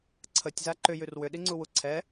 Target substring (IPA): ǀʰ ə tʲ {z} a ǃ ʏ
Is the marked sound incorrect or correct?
correct